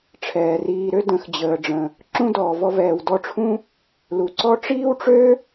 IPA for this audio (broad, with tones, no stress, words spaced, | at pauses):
ʈ͡ʂʰɛː˨riː˧ɾø˦ də̃˨˦x d͡ʑəː˨ɖ͡ʐə̃˨ | ǁũ˦dɔː˨vɔ˧vɛː˨w dɔ˧ʈ͡ʂʰũ˦ | lu˨ǀɔ˦ ʈ͡ʂiː˦wʈ͡ʂø˦